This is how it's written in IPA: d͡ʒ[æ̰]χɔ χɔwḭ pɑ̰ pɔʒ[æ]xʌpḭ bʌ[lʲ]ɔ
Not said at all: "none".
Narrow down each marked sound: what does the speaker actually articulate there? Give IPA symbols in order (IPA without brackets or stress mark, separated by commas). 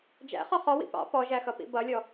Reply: æ̰, æ, lʲ